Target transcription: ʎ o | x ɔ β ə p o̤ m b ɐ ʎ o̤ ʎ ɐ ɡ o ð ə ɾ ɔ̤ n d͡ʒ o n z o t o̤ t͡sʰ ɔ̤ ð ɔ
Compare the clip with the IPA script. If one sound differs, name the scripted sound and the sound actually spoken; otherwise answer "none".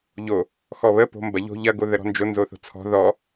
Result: t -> θ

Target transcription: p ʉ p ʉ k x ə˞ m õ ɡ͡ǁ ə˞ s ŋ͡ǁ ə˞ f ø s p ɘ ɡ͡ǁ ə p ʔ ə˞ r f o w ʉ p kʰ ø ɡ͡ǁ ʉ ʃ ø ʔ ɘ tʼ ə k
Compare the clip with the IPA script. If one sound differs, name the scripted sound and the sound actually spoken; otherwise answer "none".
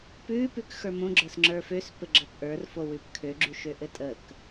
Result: none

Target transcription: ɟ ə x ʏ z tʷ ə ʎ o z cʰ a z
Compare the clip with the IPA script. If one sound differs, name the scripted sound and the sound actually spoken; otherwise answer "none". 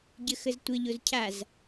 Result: ʏ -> ə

